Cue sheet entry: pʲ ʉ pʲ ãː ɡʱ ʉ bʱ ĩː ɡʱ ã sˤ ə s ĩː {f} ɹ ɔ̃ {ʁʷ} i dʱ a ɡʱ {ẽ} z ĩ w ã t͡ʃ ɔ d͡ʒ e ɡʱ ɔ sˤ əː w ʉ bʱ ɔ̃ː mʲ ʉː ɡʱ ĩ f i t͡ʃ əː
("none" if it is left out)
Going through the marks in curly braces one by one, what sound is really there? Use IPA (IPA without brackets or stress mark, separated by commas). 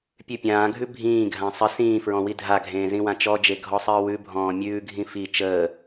f, w, ẽː